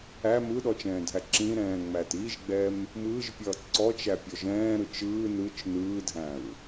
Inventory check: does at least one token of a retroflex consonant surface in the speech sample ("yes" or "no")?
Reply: no